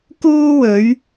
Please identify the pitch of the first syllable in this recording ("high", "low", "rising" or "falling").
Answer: high